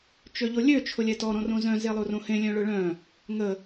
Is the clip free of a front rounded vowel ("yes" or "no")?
no